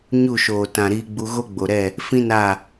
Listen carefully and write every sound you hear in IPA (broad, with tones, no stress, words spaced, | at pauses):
ɲu˦˨ʃoː˨tã˨ɾiː˧ ɡ͡bu˧ɣo˦ɡ͡bo˨ɾɛ˦˨ | fĩ˦ na˦˨